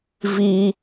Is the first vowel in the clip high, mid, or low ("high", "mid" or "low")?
high